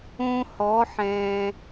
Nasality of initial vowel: nasal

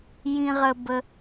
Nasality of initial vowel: nasal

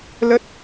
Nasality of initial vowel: oral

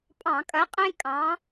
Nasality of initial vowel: nasal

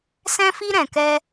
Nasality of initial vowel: nasal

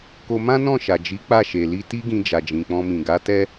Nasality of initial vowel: oral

